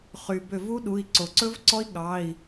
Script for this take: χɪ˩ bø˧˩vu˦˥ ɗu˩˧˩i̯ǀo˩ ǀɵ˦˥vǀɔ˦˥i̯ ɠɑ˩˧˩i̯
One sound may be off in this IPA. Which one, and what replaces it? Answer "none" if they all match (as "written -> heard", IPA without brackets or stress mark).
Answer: ɪ˩ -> y˩